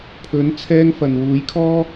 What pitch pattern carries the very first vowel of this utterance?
rising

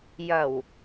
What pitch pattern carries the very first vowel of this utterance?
low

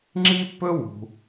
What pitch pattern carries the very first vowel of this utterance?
high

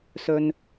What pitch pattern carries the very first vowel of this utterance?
low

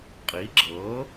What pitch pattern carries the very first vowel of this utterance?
rising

